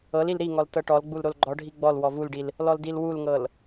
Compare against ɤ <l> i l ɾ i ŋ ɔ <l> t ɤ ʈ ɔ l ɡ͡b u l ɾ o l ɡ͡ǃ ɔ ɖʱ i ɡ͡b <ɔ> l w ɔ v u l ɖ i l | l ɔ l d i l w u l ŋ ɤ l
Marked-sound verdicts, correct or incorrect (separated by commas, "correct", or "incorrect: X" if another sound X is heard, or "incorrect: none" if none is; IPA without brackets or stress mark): correct, correct, correct